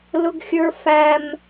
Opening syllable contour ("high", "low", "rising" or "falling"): high